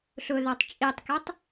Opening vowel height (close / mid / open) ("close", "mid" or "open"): close